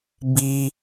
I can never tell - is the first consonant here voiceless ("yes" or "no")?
no